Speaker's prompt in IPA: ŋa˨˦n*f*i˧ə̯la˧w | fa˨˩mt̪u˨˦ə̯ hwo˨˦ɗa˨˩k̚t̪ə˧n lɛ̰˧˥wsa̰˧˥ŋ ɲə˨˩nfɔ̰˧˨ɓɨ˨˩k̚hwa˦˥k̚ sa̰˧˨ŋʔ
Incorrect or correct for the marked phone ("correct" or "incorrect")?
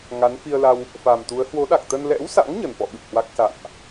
correct